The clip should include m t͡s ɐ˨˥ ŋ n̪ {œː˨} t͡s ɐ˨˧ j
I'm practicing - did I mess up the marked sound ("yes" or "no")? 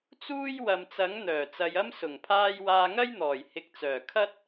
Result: yes